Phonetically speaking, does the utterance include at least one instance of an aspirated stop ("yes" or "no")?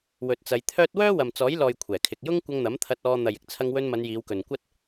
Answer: yes